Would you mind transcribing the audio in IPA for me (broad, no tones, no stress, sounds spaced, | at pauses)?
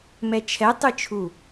m ɛ t͡ʃʰ ɛ tˤ ɯ t͡ʃʰ u